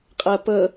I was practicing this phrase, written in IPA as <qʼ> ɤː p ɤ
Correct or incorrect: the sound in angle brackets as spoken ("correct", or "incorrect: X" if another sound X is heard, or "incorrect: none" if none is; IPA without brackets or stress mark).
correct